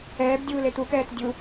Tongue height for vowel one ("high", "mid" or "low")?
mid